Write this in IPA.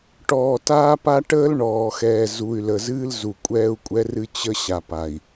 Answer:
ʈɔː˨taː˦pa˦ ʈəː˦lɳɔː˨xɛː˨ zu˨y̯lə˨zɨː˦l zu˨kʷʼɛː˦u̯kʷʼɛ˦rɨ˦ t͡ɕə˦ ɕa˨pa˨i̯

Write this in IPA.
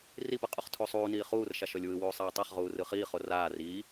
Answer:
ripɯ qʼoχtʰusˤuːniː χuːrʃaʃ ɔlʲwɯwuː sˤɛːtˤaχʁuː rɯχiːχo raːr iː

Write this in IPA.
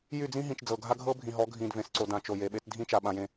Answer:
jy˦˨d͡zĩ˦ ɦĩ˨t͡ʃd͡zɤ˨ ɡʱa˦ɡʱɤ˦ bʱĩ˨ɦɔ˨˦ɡʱĩ˨dvẽ˨s ǀo˨ dã˨t͡ʃo˨ je˨ɓe˦t dʱĩ˦t͡ʃa˨ ɓã˨jẽ˨

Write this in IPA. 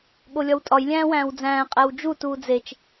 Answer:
ɠolʲɒwtʼɒj lʲæ̃ːwæ̃ːwd͡zæ̃ː qʼæwd͡ʒu tuːd͡zet͡ʃ

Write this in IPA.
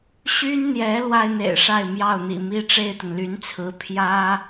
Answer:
ɕy˥nn̪jɛ˧˥ lwa˥ɪ̯n̪ḛ˨˩ɪ̯ʂa˥˧ɪ̯ mjɑ˥˩ʊ̯n̪ḭ˨˩mi˥ ʈ͡ʂe˥˩ɪ̯t̪ə˩nly˧˥nt͡sʰɹ̩˧˥ pʰjä˥

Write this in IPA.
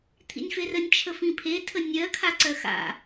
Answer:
t̪ʰḭnʲferənʲ t͡ʃʰəfĩpʰe tʰənʲɜ kʰaǀɜxa̰

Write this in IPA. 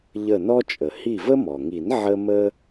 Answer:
ʎə˧˩nɔ˦t͡ʃʼə˩ hi˧˩və˦mɔ˩ŋi˨˩˦n ʕə˦ mə˦

